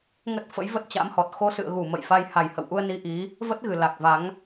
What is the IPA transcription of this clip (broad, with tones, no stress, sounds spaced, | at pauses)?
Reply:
ŋ ə˦˥ t̚ f ə̰˧˥ j v ə˦˥ t̚ t͡ɕ a̰˧˥ m h ɔ˨˩ t̚ x o˧ s ɨ̰˧˨ ə̯ ɣ u˧˩ m ə̰˧˨ j f a˧ j h a˨˩ j h ə̰˧˨ w ʔ u˧ ə̯ n i˧ ʔ i˨˦ | v ə˦˥ t̚ ɣ ɨ˨˩ l a˨˩ k̚ v a˨˦ ŋ